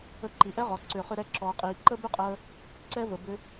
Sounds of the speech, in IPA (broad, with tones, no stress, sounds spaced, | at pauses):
ə˧ ǃ i˩ ʔ ɛ˥ ʁ ɔ˩ ǀ ʏː˩ χ ʏ˧ ɾ ɛ˧ ǁ ɔː˩ qʼ iː˩ ǃ ə˥ b ʏ˥ qʼ əː˧ | ǀ ɛ˧ v ə˩ b ʏ˧